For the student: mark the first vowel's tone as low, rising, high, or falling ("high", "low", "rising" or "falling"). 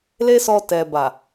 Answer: high